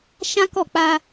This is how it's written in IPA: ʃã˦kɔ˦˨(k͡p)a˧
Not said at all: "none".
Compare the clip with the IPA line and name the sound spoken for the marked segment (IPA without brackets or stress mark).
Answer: k͡p